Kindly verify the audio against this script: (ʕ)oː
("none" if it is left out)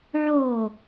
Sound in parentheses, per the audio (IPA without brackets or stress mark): ʕ